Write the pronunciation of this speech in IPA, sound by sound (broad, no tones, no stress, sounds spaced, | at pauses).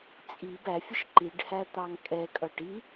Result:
t͡sʼ i b æ fʲ ə ʃ ǃ i ɖ h æ t̪ ɑ ŋ kʼ ɛ kʼ ʌ ʈ i